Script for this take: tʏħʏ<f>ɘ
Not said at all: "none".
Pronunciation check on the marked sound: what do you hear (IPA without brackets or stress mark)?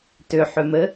m